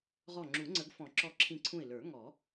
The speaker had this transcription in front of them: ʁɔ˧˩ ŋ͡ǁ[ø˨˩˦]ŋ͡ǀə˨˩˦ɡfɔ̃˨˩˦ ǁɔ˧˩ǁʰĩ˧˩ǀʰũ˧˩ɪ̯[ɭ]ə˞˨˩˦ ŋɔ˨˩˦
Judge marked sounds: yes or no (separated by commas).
no, no